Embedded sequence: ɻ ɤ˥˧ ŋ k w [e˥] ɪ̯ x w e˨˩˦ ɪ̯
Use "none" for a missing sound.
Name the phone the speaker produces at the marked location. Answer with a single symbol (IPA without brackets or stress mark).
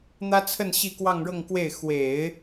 e˥˩